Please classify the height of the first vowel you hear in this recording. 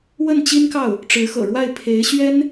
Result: mid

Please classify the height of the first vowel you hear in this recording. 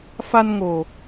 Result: low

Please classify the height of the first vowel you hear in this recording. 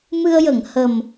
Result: high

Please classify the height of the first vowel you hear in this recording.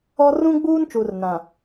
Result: mid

